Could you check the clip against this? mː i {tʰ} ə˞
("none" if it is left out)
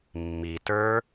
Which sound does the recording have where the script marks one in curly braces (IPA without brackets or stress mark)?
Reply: t